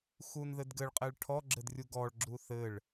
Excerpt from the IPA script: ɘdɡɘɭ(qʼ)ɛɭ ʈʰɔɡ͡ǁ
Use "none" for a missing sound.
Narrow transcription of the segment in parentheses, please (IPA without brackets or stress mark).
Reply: qʼ